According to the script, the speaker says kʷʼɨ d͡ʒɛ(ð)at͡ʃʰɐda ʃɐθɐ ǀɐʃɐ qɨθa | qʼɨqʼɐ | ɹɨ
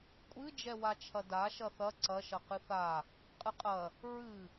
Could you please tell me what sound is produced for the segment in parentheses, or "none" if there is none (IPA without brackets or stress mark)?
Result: w